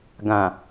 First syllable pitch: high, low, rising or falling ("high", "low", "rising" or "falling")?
low